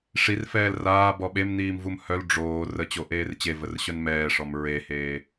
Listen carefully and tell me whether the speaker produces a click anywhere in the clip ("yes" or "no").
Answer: no